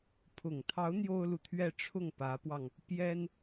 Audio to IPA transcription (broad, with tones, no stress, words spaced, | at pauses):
pʰʊ˨˩ŋt̪ʰɑ˧˥ʊ̯ n̪jo˥ʊ̯lu˨t̪ʰɥɛ˥˧ ʈ͡ʂʰʊ˥˩ŋ pä˧˥pwɑ˧ŋ | pjɛ˥n